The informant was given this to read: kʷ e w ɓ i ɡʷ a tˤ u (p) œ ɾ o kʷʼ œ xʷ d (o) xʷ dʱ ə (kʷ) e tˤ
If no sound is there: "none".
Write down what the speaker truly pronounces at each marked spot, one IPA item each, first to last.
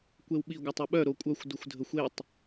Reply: ɓ, u, xʷ

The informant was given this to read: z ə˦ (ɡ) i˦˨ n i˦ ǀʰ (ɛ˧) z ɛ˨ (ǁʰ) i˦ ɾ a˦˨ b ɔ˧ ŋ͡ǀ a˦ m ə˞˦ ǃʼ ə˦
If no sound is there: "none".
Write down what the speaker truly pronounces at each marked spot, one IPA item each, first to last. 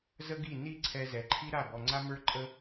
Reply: ɡ, ɛ˧, ǃʰ

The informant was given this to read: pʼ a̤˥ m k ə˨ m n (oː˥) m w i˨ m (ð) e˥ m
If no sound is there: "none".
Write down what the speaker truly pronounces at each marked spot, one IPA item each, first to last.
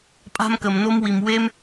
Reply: o˥, w

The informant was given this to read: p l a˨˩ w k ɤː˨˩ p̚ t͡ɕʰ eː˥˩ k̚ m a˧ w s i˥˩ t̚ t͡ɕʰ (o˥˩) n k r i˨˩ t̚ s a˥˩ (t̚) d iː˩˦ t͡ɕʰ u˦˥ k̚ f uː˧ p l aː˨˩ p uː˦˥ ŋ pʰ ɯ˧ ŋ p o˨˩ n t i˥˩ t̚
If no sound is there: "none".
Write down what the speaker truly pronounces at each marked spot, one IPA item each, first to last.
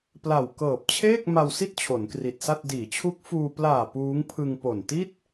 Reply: o˩˦, t̚

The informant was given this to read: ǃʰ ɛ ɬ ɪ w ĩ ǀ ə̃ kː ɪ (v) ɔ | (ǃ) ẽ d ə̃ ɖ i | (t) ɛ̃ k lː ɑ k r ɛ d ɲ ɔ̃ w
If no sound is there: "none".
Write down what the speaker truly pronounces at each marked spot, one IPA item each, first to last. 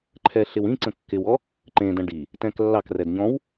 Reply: w, ǃ, t

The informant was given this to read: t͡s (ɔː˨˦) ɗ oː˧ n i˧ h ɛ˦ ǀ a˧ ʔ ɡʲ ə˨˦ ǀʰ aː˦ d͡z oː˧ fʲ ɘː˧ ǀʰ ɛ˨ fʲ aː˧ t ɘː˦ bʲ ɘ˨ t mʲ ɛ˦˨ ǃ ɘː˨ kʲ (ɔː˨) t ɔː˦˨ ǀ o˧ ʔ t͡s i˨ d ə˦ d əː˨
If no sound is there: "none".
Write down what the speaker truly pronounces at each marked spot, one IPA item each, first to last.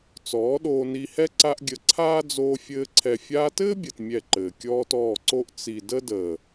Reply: ɔː˨˦, ɔː˦

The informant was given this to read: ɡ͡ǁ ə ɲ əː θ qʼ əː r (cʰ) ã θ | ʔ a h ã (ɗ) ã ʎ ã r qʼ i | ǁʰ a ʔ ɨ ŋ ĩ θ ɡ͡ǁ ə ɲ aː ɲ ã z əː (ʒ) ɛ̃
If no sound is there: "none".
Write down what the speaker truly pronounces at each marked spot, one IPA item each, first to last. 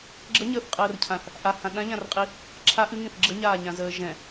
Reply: cʰ, ɗ, ʒ

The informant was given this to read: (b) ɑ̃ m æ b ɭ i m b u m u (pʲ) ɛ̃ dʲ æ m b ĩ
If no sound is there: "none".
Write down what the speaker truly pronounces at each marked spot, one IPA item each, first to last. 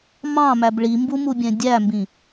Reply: m, bʲ

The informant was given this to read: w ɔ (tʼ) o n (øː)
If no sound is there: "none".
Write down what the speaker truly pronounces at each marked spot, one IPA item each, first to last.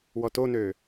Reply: t, øː

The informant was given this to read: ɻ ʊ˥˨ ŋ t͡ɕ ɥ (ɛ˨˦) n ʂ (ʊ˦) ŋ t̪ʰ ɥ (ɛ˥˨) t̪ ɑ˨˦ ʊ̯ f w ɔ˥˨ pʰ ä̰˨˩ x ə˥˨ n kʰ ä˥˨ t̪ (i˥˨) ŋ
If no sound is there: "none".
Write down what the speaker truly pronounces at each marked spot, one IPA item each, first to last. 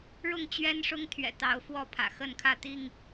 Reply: ɛ˦, ʊ˦, ɛ̰˨˩, i˥˨

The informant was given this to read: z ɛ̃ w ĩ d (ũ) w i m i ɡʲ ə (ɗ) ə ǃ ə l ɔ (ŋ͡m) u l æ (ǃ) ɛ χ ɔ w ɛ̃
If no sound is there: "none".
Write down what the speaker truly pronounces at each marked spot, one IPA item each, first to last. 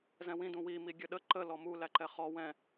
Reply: ũ, ɗ, m, ǃ

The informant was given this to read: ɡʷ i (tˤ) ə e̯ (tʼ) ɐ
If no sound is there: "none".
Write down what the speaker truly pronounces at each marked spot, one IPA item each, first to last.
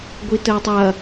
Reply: t, tˤ

